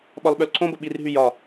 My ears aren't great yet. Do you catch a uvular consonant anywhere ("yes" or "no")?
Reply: no